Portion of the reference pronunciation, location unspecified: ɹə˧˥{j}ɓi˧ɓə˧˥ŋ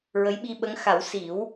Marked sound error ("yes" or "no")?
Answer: no